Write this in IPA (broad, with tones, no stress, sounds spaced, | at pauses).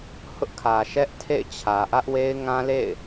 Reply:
h ʊ˦ ʔ kʰ ä˨ ʃ ɛ˦ ʔ tʰ ḛ˦˨ ɪ̯ t͡ɕʰ ä˨ ʔ ä˦ ʔ w e˦ ɪ̯ ŋ ã˦ l ḛ˦˨ ɪ̯